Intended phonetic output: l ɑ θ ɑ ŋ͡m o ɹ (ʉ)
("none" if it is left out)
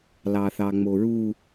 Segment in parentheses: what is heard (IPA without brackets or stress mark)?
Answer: u